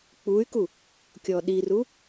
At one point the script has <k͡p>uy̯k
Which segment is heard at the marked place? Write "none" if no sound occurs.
k͡p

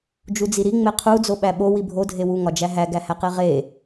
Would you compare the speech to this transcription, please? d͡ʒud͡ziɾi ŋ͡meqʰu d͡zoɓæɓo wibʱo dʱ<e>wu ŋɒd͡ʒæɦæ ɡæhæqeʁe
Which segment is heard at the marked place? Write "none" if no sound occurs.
e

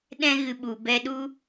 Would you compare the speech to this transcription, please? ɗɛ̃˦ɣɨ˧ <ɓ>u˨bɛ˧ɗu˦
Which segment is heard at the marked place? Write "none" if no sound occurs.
ɓ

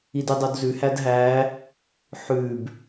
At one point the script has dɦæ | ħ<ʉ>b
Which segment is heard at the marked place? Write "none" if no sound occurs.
ʉ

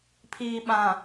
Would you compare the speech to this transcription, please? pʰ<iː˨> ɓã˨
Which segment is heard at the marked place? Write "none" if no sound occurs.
iː˨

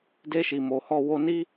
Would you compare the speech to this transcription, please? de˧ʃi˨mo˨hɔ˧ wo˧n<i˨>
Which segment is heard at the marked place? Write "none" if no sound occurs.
i˦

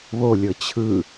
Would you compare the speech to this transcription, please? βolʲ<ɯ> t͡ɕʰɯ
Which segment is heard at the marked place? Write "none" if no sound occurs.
ɤ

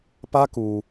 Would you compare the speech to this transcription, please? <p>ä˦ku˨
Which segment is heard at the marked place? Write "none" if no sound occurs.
p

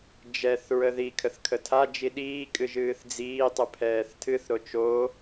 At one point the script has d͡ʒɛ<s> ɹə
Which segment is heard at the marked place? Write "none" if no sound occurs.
θ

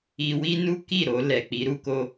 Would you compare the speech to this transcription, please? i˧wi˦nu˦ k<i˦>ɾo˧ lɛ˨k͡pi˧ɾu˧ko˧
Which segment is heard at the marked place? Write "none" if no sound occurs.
i˦˨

